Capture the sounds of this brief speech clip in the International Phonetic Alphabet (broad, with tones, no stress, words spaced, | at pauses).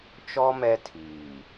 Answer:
t͡ʃɔ˦ mɛ˦tʰiː˨